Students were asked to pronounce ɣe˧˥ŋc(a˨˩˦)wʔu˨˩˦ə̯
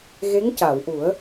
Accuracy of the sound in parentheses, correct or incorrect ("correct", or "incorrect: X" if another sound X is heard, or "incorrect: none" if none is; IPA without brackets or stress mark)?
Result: incorrect: a˨˩˨